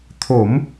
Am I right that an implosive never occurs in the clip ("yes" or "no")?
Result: yes